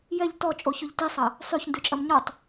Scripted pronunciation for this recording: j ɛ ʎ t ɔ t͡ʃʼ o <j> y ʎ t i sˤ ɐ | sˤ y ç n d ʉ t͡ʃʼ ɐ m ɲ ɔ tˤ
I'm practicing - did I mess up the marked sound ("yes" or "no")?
yes